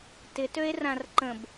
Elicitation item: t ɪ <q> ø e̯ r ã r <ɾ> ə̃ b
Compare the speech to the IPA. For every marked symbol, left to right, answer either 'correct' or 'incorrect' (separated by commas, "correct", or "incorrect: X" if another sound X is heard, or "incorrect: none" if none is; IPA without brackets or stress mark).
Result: incorrect: t, incorrect: ǃ